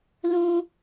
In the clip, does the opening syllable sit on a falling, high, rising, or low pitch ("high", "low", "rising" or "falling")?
high